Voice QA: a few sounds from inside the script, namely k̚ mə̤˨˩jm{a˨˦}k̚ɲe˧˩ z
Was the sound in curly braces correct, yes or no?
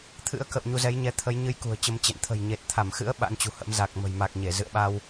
no